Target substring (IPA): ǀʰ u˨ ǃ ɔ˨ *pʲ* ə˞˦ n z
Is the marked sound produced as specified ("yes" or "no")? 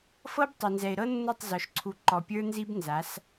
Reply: yes